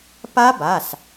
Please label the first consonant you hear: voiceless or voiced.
voiceless